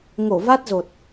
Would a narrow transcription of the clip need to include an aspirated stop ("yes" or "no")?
no